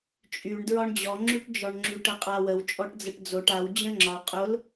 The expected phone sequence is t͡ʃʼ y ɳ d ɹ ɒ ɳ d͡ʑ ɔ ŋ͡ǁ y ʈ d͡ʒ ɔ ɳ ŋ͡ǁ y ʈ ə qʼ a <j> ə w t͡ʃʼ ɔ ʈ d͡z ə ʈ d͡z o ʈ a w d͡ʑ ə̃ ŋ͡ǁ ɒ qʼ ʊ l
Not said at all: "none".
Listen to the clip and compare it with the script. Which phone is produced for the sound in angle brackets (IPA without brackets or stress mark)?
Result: w